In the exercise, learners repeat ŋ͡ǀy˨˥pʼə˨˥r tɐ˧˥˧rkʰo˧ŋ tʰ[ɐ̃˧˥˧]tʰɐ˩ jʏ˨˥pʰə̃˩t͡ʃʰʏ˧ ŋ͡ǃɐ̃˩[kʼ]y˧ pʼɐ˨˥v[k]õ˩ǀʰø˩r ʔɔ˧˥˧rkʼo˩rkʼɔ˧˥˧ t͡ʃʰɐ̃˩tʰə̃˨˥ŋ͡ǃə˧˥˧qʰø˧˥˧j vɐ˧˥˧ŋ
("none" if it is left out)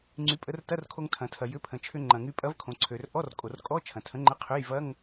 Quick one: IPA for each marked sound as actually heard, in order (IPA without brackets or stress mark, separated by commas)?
ɐ̃˩, ŋ, kʰ